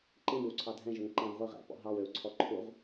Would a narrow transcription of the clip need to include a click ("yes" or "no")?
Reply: yes